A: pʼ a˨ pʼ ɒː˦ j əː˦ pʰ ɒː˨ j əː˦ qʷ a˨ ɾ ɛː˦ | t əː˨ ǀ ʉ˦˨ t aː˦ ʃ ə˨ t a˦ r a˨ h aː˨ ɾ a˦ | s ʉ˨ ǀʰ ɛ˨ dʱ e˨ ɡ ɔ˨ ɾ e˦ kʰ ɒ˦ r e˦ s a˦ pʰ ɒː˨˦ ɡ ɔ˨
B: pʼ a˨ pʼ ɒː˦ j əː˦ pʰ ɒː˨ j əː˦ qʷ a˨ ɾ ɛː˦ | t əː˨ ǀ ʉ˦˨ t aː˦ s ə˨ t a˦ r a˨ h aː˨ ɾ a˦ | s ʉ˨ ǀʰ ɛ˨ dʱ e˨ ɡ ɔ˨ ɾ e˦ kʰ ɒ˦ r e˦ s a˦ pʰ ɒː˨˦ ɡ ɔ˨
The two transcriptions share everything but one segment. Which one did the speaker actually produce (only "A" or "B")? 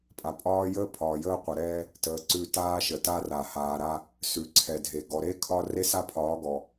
A